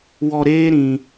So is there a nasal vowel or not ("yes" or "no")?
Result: yes